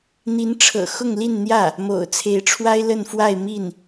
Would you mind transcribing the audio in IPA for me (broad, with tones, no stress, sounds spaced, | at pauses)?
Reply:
n̪ i˧˥ n ʈ͡ʂʰ ɤ̰˨˩ x ʊ˥˧ ŋ l i˥˧ n n̪ j ä˥˩ | m o̰˨˩ ʊ̯ t͡sʰ e˧˥ ɪ̯ ʈ͡ʂʰ w a˥ ɪ̯ l ə˥˧ n f w a˥˧ ɪ̯ m i˥˩ n